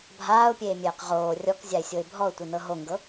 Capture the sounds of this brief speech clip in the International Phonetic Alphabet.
bʱ aː ʊ̯ pʲ eː mʲ eː q ʁ oː rʲ ɔ k zʲ a ɪ̯ sʲ o ɪ̯ bʱ ɔ ʊ̯ tʷ i n ɤ ɦ o ŋ ɡ ɤ

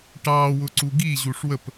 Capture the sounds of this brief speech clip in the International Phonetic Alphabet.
ʈ ɑ w ʊ ǀ u ɡ i ʑ u ʂ w ə p

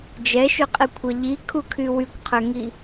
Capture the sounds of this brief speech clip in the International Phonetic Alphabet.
d͡ʒ ɛ ʃ y qʼ i kʷʰ ɐ ʎ i kʰ u kʰ y w y kʷ qʰ ø ŋ i

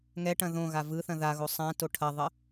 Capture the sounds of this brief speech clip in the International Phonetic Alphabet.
ŋ ɛ ʈ ɐ̃ ð õ ɣ a v ɯ θ ɐ̃ ð a ɣ o sˤ ã t o ʈʰ ɐ ðˤ ə

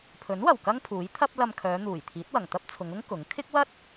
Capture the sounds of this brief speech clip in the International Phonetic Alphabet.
pʰ ɵ˨˥ n w ɐ˨˩ w k ɐ˥ ŋ pʰ uː˨˥ j t̪ʰ ɐ˥ p̚ l ɐ˧ m kʰ œː˨˧ n̪ uː˨˩ j t̪ʰ iː˨˥ t̚ w ɐ˨˩ ŋ t̪ ɐ˥ p̚ t͡sʰ ʊ˨˧ ŋ ʊ˥ ŋ k ʊ˨˥ ŋ kʰ ɪ˥ k̚ w ɐ˥ t̚

